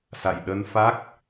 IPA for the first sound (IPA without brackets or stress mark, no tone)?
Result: s